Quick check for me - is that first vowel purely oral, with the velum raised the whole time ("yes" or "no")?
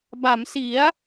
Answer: yes